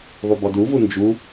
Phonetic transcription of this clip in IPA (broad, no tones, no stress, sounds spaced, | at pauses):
ðˤ u b ɔ d u v u n d͡ʒ u